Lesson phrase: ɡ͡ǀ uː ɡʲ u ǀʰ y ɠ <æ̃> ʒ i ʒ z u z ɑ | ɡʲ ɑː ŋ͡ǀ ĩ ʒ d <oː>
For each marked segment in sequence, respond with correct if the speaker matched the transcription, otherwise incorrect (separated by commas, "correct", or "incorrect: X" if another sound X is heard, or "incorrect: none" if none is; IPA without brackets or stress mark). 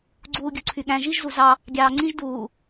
correct, incorrect: uː